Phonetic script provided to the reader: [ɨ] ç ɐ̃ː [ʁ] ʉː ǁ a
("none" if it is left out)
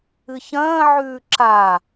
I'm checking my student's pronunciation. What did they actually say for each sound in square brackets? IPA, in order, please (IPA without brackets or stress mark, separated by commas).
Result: ɨ, ʕ